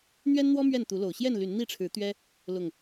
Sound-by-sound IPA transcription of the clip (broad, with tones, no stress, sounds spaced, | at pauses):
n̪ ɥ ɛ˦ n n̪ w ɔ˦ m ɥ ɛ˥˨ n t̪ u˨˦ l o˨˩ ʊ̯ ɕ j ɛ˥˨ n l y˨˦ n n̪ i˥˨ ʈ͡ʂʰ ɻ̩˨˦ t̪ ɥ ɛ˦ | l ʊ˨˩ ŋ